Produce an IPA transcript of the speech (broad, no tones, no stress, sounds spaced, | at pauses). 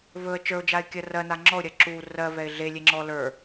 v ɵ ə̯ t͡ʃ ə˞ ʊ̯ d͡ʒ a ɪ̯ kʲ ɜ r ɜ n a ŋ͡ǁ ɔ ʊ̯ ɾʲ ɜ ǁ u r ɜ v ɛ ɪ̯ ɮ e lʲ e ŋ͡ǁ ɔ l ə˞